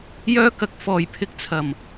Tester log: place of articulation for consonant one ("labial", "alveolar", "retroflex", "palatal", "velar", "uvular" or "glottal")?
palatal